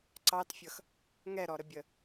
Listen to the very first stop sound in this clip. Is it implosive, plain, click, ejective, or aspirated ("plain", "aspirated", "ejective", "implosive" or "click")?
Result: click